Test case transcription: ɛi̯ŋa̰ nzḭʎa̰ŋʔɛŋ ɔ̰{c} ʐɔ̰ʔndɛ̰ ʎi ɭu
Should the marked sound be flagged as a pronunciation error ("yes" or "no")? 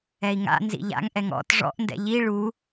yes